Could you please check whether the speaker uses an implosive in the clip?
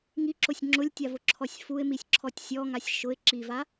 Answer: no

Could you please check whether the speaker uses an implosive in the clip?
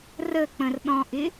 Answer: yes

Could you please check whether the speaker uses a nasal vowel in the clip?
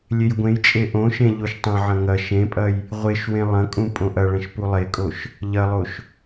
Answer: yes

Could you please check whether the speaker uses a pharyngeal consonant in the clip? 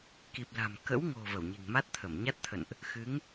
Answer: no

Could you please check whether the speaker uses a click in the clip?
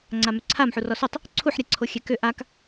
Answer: yes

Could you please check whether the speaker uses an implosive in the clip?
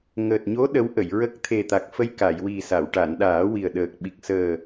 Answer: yes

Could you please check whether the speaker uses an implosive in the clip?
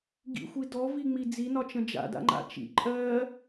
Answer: no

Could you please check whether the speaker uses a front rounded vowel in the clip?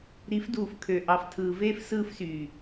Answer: yes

